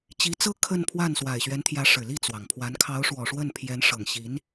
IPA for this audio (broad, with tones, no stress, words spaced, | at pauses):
t͡ɕi˧˥t͡sɤ˥ kʰə˥˧npʰwa˥˩n swa˨˩ɪ̯ɕɥɛ˧˥nt̪ʰjä˧˥ ʂɻ̩˨˩li˥˩t͡swɑ˩ŋpʰwa˧˥n kʰɑ˧˥ʊ̯ʂwɔ˨˩ ʂwə˥˩npʰjɛ˧˥nʂɤ˨˩ŋɕi˧˥n